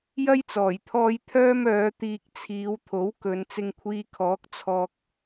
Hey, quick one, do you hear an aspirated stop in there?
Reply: yes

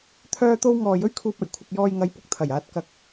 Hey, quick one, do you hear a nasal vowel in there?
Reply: no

